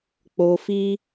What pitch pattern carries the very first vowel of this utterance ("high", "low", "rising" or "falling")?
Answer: low